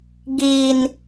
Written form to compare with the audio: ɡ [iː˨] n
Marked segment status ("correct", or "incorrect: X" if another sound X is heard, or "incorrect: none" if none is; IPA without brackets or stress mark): correct